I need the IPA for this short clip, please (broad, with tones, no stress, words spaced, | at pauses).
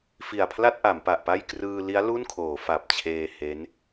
fi˨˩a̯pʰla˥˩t̚ʔa˩˦m pa˨˩ʔpa˥˩j krɯː˧li˦˥a̯ lu˥˩nkʰoː˩˦ fa˨˩p̚t͡ɕʰeː˧ he˦˥n